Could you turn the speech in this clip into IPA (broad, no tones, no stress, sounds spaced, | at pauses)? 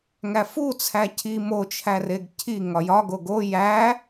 ŋ æ f u t͡sʰ æ cʰ i m o t͡ʃʰ æ r e ɡ cʰ i ŋ ɒ j ɒ ɡ o ɡ o j æ